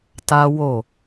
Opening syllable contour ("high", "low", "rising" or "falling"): high